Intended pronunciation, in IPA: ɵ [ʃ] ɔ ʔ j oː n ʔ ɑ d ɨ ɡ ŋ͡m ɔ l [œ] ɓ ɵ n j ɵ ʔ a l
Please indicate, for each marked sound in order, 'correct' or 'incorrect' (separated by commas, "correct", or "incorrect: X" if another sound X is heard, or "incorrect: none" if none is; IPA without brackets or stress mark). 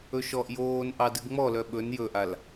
correct, correct